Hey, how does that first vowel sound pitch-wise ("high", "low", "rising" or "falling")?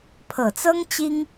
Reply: low